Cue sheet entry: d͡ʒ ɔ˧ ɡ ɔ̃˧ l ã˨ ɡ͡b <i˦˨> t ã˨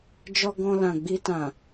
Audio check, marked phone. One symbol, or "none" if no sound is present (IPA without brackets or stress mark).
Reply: i˧